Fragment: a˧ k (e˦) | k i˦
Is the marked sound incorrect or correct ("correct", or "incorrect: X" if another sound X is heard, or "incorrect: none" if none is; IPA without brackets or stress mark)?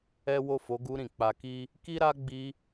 incorrect: i˦